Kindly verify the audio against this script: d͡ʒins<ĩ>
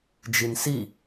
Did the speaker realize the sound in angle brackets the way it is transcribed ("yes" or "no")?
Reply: no